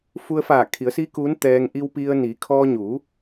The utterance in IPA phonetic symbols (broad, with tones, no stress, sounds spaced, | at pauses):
f u˧ ə̯ f aː˧˩ kʰ i˩˧ ə̯ s iː˧˥ k uː˧˥ n t̪ ɛː˧ ŋ ʔ i˧ w p i˧ ə̯ n i˩˧ kʰ ɔː˧ ɲ u˩˧